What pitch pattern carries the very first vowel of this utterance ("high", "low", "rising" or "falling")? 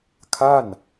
falling